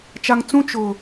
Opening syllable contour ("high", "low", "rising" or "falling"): high